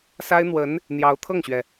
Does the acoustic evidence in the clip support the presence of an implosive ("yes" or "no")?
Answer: no